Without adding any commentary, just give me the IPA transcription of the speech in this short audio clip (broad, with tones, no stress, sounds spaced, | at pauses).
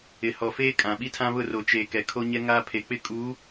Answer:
ɪ˨ h ɔ˨ f eː˦ kʼ ã˨ ɓ i˦ tʰ ã˦ β ʊ˦˨ r o˨ t͡ʃ eː˨ k ɛ˨ kʰ o˦ ɲ ɛ˦ ŋ aː˦ pʰ e˨ k͡p ɪ˦ kʼ u˨˦